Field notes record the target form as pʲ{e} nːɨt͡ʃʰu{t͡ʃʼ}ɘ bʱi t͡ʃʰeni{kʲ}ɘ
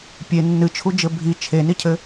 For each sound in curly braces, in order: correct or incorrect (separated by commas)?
correct, incorrect, incorrect